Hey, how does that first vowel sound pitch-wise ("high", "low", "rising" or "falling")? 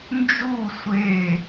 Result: falling